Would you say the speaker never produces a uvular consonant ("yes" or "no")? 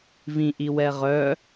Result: no